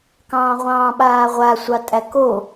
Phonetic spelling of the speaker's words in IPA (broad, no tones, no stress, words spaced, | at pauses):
kɑ̃ːʁʷɑ̃ːɓaːʁʷa sʷɑtʼæko